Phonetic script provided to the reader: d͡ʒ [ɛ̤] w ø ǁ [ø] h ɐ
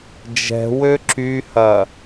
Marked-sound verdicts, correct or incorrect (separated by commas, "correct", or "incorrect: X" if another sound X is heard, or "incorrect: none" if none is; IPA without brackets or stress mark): correct, incorrect: y